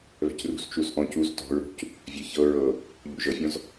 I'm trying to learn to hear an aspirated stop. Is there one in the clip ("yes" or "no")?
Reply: no